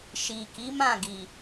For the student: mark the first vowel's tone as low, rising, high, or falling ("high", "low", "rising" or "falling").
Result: low